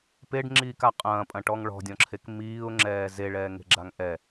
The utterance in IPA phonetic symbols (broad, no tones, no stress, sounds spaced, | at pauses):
p e ɖ ŋ͡ǁ iː k a qʼ ɐ̃ː pʼ ɐ̃ ʈ ɔ ŋ ɭ ɔ̤ dʲ ɔ̃ ǁʰ e k m iː ʊ̯ ŋ͡ǁ ɛː z e ɭ ɛː ŋ e̤ ɡ͡ǁ a ŋ ʔ ɛ